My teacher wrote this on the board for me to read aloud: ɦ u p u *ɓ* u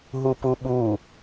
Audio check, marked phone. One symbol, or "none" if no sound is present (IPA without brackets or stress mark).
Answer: ɓ